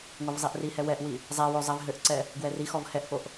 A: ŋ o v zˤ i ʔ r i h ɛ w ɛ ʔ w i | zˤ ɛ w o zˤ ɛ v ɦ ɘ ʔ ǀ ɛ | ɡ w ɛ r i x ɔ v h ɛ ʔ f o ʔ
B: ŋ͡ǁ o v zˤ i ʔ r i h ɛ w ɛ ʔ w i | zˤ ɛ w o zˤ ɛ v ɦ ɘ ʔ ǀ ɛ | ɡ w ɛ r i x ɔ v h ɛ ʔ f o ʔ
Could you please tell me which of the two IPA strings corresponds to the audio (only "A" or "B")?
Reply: A